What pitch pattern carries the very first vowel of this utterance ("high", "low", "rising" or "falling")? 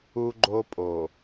high